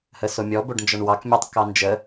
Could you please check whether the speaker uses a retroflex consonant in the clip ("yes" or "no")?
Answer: yes